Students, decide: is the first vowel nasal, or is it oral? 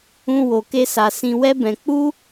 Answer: nasal